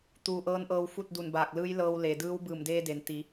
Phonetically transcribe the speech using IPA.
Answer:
t̪uː˧˩ʔɤː˧˥nʔɤː˧w fu˥˨t̚du˧˩nbaː˧˩k̚lɯː˧˥j lɤː˧w le˩dɯː˧˥w bɯː˧˩mdeː˧de˩n t̪i˩˧

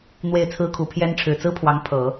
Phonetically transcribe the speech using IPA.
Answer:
n̪we˥˩ɪ̯t͡sʰɹ̩˥kʰu˨˩pʰjɛ˥n ʈ͡ʂʰɻ̩˨˩t͡sɹ̩˥pʰwɑ˧˥ŋ pʰɤ˨˩˦

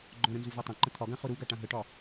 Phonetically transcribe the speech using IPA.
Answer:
ɡ͡ǃɔ̃ɾə̃nzuvɔ tˤãǃə̃ t̪ʰɒɡãχʊ ɾuɡaʈã ɦəʈɒ

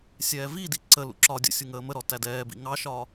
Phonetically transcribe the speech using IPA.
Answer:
sʲɛːvidi ǀəlṵ ǁɒ dʲə̰sʲu ŋəːməɾɔ tædɛːbḭ ŋɑʃɒː

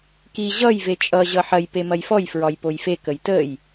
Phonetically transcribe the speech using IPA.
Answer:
ki ʑʌj vet͡ʃʼʌ ʑʌħɐj pemɐjfɔj fɹɒjpojfe kəjtəj

